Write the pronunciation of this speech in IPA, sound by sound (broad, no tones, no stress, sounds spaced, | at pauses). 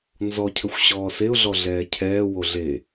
n z ɔ cʰ ə xʷ ɕ ɔː s e ʊ̯ ɮ ɔ ɮ ɛː cʰ ɛː w o ɮ e